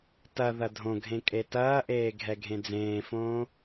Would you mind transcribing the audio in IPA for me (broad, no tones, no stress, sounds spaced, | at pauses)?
t ɐ ð ɐ dʱ õ ɡʱ ẽ kʼ e t ɐː ʔ eː ɡʱ ɛ ɡʱ ẽ d͡z ẽː f õː